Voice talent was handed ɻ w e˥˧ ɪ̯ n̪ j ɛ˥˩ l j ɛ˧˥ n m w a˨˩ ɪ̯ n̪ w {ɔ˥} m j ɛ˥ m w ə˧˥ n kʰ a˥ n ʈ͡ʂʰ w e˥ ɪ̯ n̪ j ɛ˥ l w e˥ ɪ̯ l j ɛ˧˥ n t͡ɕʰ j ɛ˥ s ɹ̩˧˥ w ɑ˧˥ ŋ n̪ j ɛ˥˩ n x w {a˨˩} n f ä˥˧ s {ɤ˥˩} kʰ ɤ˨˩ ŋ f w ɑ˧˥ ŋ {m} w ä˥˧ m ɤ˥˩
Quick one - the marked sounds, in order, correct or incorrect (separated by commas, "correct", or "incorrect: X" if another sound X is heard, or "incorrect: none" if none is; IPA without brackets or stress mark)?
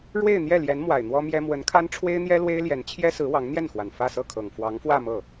correct, correct, correct, incorrect: f